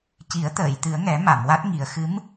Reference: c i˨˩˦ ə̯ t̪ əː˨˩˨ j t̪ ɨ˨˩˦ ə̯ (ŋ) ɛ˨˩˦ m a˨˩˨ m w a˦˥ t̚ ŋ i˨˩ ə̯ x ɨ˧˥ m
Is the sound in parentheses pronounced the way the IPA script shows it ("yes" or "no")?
yes